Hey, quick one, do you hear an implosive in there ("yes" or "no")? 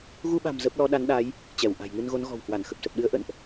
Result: yes